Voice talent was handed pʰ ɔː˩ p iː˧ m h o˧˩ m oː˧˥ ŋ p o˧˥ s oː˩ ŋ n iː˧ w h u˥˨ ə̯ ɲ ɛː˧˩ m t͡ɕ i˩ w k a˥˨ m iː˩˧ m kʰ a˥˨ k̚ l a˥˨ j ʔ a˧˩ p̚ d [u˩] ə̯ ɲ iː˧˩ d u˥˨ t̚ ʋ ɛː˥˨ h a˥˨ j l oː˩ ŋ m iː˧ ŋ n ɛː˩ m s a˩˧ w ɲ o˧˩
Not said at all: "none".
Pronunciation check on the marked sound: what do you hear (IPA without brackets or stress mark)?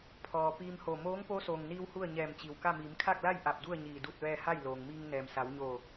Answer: u˥˨